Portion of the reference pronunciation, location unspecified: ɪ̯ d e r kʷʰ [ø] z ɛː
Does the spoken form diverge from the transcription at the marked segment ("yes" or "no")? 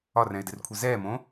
yes